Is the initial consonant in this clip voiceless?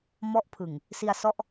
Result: no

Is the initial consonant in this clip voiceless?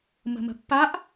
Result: no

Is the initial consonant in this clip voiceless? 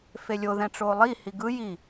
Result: yes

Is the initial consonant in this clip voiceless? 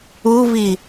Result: no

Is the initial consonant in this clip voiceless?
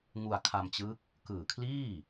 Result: no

